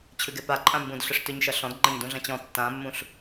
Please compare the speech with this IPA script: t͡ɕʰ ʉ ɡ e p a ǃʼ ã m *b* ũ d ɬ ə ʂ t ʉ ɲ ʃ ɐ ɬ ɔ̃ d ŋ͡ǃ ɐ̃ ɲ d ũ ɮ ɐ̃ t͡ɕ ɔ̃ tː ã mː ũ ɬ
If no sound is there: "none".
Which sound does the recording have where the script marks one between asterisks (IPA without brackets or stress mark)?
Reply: b